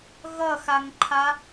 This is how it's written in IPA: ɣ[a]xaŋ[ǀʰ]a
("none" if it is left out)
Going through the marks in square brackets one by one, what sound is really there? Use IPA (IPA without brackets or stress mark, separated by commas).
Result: ʌ, ǃʰ